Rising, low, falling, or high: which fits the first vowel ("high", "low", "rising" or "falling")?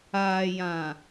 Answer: low